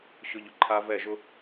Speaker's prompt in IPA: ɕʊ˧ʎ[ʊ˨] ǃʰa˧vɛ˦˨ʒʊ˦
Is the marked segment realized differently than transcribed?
no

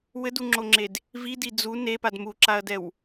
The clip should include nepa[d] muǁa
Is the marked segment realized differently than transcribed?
no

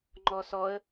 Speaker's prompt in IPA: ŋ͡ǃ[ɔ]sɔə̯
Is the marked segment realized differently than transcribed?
no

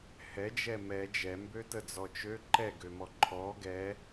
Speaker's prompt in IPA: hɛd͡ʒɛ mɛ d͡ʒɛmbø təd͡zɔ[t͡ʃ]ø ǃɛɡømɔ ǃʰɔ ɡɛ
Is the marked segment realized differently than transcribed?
no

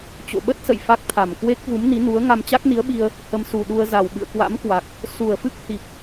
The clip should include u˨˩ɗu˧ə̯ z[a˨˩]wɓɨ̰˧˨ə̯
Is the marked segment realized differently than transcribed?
no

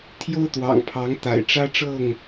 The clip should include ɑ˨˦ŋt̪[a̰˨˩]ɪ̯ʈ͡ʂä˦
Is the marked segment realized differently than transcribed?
no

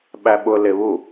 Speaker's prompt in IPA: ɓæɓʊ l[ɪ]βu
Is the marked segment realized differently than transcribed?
no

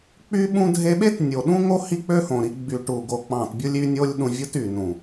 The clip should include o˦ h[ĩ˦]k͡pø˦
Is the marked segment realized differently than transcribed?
yes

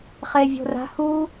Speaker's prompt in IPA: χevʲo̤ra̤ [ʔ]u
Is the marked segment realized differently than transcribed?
yes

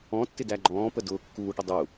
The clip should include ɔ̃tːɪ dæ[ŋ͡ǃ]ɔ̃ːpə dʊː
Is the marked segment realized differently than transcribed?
yes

